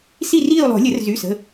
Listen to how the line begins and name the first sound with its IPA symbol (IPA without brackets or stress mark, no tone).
s